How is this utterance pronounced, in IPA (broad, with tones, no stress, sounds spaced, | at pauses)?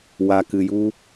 w a˨ k ɨ˨ j u˦